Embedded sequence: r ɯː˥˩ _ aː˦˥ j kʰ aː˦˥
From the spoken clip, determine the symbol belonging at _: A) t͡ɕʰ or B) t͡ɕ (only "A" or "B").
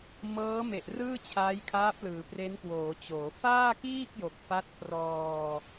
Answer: A